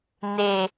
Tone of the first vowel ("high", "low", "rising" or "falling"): low